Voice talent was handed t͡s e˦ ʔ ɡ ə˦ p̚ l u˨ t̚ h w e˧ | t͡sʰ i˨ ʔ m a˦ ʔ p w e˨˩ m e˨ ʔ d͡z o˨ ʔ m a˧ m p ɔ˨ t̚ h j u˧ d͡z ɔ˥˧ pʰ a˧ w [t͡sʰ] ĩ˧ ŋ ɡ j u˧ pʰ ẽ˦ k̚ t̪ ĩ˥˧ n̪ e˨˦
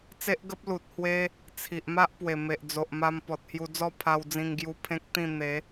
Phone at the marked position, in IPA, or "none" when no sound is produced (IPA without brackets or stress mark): d͡z